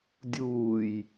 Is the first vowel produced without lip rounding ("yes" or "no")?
no